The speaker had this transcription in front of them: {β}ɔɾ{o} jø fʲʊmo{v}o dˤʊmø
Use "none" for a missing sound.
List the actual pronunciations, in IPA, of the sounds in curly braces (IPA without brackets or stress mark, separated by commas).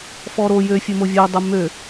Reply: f, o, vʲ